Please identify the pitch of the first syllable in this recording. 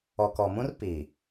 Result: low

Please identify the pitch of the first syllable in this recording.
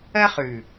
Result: high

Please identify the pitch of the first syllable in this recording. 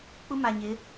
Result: high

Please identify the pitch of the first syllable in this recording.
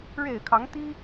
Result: low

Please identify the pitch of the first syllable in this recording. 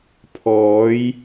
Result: rising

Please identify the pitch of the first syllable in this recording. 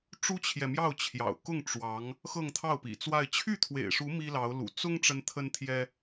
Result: high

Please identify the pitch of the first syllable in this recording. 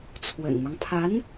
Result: low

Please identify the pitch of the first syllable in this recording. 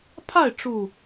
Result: falling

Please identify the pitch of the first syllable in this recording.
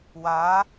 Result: rising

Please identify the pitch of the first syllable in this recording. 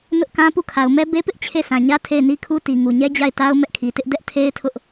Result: high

